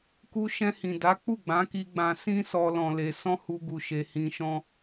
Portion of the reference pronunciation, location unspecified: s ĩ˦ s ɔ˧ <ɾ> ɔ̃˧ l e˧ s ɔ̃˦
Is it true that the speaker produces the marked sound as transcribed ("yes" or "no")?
no